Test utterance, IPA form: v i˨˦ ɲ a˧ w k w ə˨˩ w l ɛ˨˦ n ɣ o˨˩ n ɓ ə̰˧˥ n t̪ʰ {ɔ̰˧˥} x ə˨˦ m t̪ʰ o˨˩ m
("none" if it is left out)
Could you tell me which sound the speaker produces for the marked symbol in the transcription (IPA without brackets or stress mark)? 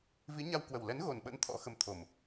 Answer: ɔ̰˧˥